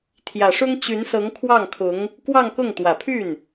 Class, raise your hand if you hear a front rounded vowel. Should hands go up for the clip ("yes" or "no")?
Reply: yes